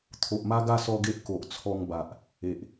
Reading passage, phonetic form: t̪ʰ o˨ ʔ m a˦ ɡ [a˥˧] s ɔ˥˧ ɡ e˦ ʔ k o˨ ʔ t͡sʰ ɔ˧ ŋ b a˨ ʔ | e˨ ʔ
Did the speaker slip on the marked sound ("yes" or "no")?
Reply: no